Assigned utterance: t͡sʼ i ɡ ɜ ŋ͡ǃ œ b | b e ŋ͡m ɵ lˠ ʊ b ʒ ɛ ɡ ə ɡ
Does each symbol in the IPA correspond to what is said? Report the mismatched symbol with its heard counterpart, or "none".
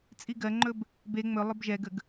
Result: œ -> ɵ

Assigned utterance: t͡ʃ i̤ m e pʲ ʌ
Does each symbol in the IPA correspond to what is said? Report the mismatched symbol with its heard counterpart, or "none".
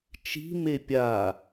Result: ʌ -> a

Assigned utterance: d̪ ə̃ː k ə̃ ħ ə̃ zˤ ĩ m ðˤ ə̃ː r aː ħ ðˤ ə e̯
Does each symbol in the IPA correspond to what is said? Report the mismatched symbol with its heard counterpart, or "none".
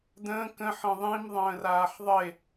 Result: zˤ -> ðˤ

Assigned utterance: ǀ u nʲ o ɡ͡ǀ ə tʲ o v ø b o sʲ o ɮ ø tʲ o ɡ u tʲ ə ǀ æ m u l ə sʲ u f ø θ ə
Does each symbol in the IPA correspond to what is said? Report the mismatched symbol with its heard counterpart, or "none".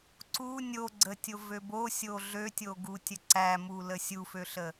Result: θ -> ɬ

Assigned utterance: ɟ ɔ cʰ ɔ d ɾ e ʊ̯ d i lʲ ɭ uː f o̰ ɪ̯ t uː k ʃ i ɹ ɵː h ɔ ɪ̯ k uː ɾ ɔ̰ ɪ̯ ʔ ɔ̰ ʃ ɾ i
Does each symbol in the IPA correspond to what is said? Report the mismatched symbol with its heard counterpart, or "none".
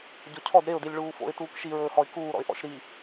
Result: none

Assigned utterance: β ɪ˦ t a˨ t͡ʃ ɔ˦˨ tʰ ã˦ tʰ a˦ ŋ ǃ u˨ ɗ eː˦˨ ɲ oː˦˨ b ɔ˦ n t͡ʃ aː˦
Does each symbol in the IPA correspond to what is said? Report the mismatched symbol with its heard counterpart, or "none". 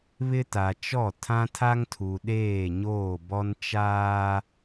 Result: ǃ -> tʰ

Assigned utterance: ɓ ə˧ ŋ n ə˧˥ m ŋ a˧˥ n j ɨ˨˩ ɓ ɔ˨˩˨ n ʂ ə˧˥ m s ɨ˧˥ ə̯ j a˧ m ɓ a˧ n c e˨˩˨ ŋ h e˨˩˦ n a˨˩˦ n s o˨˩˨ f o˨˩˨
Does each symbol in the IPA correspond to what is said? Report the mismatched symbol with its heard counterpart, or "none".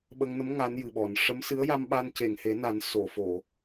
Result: none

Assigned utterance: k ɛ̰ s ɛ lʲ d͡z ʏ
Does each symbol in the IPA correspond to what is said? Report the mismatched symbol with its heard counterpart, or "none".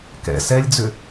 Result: none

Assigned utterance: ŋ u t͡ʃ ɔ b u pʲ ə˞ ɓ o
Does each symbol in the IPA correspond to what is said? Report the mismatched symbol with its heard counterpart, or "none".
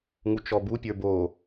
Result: ɓ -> b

